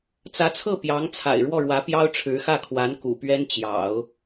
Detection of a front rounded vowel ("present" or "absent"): absent